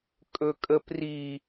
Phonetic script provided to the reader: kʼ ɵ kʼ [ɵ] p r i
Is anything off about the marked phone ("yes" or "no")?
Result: yes